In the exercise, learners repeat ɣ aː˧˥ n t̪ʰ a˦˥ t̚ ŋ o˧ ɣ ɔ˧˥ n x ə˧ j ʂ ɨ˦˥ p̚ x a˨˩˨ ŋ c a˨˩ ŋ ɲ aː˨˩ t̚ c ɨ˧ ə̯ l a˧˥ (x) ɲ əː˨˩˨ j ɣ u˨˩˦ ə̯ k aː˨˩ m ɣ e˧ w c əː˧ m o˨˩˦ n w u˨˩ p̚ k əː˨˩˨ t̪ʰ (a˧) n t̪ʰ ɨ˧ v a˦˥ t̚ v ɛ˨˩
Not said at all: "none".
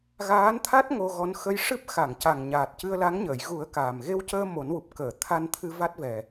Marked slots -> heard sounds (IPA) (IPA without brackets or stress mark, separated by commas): ŋ, a˧